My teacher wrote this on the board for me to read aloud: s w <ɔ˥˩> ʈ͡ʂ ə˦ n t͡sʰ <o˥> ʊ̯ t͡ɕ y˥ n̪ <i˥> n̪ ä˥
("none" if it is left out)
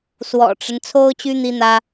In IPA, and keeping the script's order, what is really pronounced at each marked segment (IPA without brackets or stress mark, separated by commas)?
ɔ̰˨˩, o˥, i˥